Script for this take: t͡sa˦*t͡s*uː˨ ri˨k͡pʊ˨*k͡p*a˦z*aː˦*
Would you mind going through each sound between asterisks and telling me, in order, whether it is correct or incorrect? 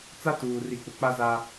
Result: incorrect: t, correct, incorrect: a˦

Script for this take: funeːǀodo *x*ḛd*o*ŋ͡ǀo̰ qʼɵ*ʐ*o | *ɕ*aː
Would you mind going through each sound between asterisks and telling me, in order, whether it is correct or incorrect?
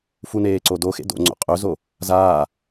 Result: correct, incorrect: o̰, incorrect: z, incorrect: z

